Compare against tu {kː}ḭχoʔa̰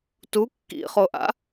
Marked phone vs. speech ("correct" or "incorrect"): correct